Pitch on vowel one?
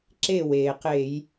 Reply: falling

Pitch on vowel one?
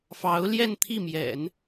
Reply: rising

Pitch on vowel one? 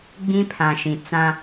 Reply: high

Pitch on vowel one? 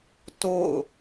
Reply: falling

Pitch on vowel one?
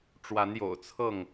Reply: rising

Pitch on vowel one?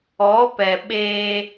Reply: rising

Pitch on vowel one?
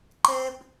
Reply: high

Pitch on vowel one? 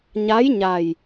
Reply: rising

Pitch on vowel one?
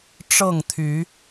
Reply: falling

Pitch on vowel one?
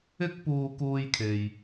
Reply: high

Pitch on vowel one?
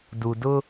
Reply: low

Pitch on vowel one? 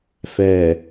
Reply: low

